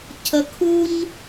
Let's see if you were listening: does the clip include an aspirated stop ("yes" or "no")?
yes